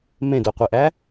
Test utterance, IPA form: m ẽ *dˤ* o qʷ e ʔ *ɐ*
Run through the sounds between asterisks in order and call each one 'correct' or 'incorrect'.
incorrect, incorrect

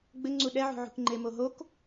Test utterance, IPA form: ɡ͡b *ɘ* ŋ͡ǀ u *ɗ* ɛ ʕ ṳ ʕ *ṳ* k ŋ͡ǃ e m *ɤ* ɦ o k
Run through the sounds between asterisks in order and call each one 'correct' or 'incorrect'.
correct, correct, correct, incorrect

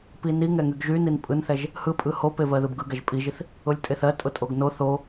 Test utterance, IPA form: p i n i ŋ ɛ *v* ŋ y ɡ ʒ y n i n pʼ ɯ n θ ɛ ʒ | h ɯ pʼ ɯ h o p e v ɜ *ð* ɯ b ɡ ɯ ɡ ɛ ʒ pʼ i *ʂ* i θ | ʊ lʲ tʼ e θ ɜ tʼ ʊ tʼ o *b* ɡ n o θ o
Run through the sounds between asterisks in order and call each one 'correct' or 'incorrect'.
incorrect, correct, incorrect, incorrect

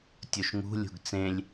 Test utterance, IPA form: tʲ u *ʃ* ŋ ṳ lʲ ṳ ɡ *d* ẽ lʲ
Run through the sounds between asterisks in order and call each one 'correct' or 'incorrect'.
correct, incorrect

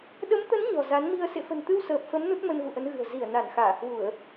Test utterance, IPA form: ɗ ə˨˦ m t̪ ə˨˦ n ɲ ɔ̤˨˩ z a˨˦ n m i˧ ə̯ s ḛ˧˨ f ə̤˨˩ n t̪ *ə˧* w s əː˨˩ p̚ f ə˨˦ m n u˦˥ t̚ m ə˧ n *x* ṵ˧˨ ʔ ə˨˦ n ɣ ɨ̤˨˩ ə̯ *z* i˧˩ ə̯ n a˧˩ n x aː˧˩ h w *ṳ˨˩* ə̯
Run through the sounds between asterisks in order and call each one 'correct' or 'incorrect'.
incorrect, incorrect, correct, incorrect

